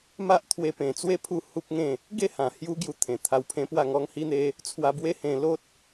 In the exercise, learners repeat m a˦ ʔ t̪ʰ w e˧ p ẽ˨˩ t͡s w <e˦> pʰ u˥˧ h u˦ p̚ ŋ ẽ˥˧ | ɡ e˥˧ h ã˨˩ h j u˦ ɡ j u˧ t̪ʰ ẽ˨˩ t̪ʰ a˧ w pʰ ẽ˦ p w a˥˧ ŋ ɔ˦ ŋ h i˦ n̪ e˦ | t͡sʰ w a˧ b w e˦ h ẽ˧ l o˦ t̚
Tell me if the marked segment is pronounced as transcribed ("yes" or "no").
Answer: yes